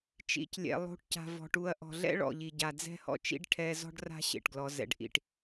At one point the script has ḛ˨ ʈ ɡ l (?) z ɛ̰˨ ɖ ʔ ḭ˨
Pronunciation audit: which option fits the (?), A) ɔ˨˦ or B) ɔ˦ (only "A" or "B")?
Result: A